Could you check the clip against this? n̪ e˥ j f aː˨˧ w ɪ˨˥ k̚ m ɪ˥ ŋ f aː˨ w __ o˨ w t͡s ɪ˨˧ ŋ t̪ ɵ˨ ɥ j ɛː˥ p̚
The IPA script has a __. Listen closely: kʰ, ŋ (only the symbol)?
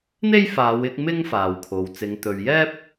kʰ